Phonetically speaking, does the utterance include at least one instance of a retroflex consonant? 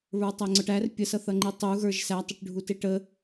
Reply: yes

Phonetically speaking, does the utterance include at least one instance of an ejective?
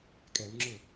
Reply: yes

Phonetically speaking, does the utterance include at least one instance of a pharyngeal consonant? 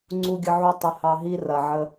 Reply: yes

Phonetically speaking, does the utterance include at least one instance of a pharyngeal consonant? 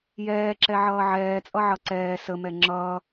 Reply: yes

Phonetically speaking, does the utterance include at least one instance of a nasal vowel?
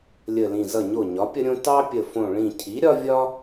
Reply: yes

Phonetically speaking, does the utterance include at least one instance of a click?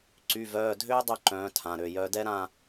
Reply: yes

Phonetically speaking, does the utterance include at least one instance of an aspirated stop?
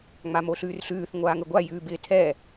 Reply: yes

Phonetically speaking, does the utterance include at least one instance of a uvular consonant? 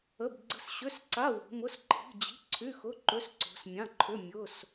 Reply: no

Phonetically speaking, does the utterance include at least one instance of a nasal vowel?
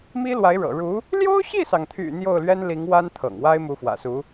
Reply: no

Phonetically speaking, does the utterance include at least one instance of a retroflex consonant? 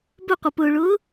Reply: yes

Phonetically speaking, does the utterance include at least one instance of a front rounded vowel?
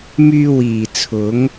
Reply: yes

